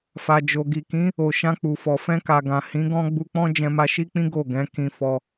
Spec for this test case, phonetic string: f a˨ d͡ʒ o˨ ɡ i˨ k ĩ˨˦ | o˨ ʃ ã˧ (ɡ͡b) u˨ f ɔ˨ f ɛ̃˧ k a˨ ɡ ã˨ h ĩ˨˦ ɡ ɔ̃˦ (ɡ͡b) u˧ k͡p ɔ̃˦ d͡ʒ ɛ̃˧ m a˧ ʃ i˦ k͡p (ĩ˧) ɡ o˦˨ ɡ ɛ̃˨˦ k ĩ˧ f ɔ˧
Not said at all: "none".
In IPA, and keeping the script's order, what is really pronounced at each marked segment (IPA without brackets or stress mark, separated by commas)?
k͡p, ɡ͡b, ĩ˦